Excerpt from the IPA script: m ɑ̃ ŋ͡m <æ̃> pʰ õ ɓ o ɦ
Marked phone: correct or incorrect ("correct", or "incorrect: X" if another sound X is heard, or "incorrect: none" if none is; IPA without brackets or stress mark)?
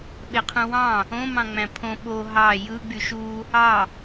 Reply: correct